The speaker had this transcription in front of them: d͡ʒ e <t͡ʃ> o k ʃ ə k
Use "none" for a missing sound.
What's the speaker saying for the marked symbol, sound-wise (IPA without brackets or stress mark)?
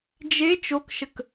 t͡ʃ